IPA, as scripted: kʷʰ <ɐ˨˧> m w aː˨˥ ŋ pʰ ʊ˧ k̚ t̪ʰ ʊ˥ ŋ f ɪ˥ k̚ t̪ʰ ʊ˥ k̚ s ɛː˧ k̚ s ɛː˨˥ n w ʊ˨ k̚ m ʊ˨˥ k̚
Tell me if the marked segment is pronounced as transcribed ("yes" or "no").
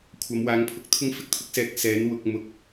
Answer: yes